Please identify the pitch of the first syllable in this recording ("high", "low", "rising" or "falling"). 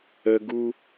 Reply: low